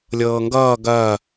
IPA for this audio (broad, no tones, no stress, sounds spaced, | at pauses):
lʲ ɤː ŋ ɡ ʌː ɡ ɐː